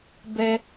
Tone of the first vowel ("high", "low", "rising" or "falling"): high